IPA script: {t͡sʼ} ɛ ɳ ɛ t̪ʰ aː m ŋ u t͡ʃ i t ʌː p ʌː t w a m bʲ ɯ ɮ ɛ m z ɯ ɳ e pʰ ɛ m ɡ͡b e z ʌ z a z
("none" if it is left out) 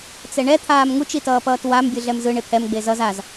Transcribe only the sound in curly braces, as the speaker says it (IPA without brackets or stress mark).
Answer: t͡s